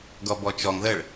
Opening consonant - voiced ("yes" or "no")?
yes